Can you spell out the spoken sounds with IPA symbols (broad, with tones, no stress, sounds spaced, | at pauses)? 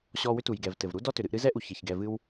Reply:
ɕ ɔ˧ w ʏ˦ t u˨ j ɡ ɛ˨ v t ɘ˨ v ɾ u˦ d ɔ˦ t ʏ˨ ɾ ɨ˧ ʔ ɾ ɨ˦ z ɛ˦ ʔ u˨ ç e˨ ç ɡ ɛ˧ v ɨ˦ w